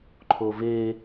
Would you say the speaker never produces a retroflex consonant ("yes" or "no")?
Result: yes